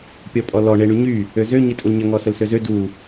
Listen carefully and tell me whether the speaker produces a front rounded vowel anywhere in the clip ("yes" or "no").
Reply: yes